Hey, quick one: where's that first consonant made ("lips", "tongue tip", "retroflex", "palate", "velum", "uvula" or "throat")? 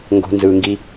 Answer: velum